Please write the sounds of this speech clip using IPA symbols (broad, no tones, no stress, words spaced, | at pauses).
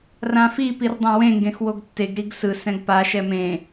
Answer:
rãfi pirdˤɛ̃wẽ ŋɡẽxwoɡtːeɡ ɾiɡsɯ sɛ̃ɡpa ʃɛmẽ